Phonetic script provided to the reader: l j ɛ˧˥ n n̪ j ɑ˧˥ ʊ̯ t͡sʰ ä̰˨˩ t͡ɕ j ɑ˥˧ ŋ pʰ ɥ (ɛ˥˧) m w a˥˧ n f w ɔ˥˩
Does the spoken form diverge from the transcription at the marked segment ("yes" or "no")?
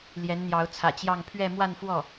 no